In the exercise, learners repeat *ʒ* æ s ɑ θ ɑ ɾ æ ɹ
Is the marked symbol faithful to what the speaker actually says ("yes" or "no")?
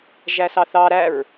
yes